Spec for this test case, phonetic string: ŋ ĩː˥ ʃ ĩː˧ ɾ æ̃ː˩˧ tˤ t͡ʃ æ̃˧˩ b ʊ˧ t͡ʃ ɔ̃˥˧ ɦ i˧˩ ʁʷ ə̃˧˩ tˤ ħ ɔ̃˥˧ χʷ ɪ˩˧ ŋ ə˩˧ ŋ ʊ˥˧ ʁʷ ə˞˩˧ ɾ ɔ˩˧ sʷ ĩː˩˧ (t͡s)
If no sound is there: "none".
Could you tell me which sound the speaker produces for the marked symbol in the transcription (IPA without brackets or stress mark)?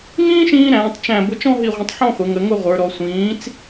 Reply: t͡s